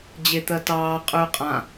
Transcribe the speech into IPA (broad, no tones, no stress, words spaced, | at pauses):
d͡ʑet̪ɜtɑː qʼʉy̯qʼã